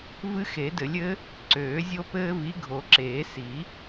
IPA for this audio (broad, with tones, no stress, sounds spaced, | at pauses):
v ɨ˦ x e˨˩˦ d ɘ˨˩˦ lʲ ɘ˨˥ | ǀ øː˨˩˦ zʲ o˦ p ɘː˦ v i˨˥ ɡʱ o˨˩˦ ǁ eː˨˩˦ s i˨˩˦